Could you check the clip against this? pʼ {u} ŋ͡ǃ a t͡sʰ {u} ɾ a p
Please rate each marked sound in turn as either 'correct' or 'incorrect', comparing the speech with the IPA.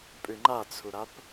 incorrect: ʉ, correct

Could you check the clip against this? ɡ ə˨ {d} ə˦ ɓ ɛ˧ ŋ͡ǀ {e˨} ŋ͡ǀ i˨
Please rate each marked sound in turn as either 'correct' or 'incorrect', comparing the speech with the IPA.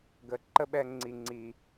incorrect: ǃ, incorrect: i˨

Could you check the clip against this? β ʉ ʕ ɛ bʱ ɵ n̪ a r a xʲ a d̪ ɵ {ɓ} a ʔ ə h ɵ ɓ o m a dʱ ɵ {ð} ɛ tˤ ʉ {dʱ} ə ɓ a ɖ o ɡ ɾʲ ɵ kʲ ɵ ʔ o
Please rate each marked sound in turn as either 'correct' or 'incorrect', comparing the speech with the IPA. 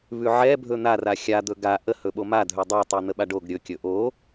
incorrect: ɡ, incorrect: dˤ, incorrect: n̪

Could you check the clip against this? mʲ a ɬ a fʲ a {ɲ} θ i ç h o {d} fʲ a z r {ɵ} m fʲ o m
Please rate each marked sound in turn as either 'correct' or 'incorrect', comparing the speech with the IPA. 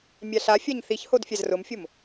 correct, correct, incorrect: ʊ

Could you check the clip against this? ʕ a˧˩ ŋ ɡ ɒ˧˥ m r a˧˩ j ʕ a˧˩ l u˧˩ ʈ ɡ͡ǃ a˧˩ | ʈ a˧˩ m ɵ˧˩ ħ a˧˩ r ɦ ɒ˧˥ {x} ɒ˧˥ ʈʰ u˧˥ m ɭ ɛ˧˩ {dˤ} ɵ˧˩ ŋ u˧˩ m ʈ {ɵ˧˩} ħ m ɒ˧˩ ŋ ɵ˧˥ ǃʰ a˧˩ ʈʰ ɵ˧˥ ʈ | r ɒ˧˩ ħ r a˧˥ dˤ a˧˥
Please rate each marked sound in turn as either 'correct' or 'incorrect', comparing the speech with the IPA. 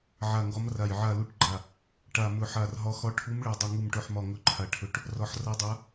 correct, correct, correct

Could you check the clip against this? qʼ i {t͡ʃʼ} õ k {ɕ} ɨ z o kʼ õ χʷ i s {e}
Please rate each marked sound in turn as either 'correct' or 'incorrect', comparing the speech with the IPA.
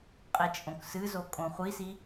correct, incorrect: s, incorrect: i

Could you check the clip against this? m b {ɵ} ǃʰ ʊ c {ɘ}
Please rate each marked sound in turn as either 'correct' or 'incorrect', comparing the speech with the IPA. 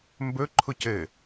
correct, correct

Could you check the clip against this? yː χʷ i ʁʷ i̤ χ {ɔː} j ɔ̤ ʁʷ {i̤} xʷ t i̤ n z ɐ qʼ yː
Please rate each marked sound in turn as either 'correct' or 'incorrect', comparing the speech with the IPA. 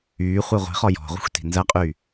incorrect: ɔ, correct

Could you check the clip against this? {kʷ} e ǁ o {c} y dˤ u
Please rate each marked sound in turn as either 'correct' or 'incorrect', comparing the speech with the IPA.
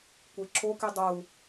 correct, incorrect: k

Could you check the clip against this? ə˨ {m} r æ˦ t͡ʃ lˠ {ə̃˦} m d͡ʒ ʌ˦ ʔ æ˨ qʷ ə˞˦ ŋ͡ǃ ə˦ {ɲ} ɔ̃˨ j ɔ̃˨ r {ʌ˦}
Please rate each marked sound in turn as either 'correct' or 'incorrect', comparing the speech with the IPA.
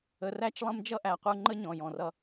incorrect: none, correct, correct, correct

